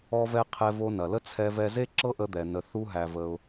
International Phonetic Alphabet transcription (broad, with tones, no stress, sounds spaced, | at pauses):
ɔ˧ v ɛ˧ qʰ ɛ˧ v o˧ n ɐ˩ l ə˥ t͡sʰ ɛ˧ v ɛ˧ z e˥ ǁ ɤ˥ ʔ ə˧ d̪ ɛ˩ n ə˩ θ u˧ ɦ æ˩ v ə˩ ʊ̯